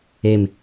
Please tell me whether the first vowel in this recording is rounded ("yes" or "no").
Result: no